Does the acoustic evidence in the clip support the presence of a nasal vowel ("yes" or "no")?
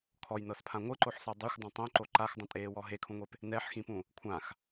yes